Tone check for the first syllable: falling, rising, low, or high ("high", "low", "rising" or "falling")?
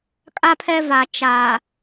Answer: high